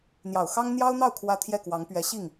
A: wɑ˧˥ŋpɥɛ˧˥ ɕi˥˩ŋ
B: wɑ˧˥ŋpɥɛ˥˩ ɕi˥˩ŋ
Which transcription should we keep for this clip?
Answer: A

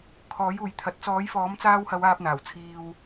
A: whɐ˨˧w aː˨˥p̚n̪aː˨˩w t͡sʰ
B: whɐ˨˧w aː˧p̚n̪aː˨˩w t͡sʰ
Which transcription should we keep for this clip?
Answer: B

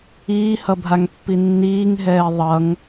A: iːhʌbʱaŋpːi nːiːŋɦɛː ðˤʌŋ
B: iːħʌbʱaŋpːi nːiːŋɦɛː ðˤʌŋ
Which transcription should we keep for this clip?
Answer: A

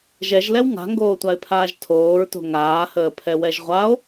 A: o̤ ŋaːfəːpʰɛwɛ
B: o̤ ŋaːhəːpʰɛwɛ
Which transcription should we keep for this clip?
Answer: B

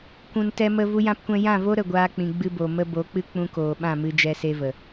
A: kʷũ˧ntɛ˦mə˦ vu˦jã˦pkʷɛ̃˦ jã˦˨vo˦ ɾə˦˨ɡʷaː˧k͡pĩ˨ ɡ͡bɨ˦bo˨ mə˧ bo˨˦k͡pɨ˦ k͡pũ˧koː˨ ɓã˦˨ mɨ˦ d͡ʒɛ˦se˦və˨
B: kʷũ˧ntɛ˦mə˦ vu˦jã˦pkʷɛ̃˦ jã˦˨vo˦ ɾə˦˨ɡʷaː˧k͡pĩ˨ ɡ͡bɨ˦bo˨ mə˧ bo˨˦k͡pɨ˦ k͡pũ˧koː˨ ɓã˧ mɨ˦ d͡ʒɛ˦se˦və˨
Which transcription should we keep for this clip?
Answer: A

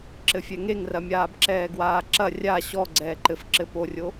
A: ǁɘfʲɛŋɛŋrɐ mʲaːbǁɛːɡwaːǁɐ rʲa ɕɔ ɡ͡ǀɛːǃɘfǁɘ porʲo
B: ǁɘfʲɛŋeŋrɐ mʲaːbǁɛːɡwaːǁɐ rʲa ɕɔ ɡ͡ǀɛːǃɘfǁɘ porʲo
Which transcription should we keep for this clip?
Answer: B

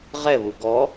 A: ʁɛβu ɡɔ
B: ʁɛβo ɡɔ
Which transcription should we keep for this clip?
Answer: A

